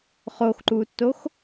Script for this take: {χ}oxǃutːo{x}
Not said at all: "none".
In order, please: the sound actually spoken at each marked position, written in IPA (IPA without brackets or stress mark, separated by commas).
χ, x